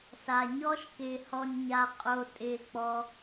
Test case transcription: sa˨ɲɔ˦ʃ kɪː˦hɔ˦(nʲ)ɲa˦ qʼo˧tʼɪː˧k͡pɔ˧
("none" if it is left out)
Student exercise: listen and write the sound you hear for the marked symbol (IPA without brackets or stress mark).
nʲ